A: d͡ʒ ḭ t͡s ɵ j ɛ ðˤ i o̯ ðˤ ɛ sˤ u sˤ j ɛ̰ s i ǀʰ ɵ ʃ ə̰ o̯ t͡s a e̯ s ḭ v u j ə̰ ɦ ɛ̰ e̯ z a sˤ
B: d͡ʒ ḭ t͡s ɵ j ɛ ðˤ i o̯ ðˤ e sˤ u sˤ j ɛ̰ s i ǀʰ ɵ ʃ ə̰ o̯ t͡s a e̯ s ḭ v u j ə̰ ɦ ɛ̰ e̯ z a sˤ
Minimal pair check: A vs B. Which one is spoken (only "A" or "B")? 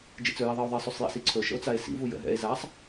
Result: B